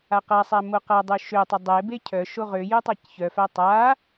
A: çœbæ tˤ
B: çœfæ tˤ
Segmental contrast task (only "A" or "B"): B